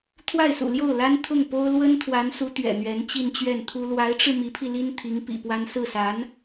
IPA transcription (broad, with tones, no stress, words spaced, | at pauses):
t̪ʰwa˥˩ɪ̯sṵ˨˩ljo˥˩ʊ̯ la˥n t̪ʰʊ˥˩ŋpo˥ʊ̯ lwə˥nt̪ʰwa˧˥nsu˧˥ t̪ɥɛ̰˨˩n̪ɥɛ˧˥n t͡ɕi˥˧nt͡ɕɥɛ˥˩nt̪ʰu˥ lwa˧˥ɪ̯ʈ͡ʂɻ̩˧ mi˧˥pʰi˧li˥n t̪ʰi˧˥ŋpḭ˨˩pwa˥n sɹ̩˥˩sa˧˥n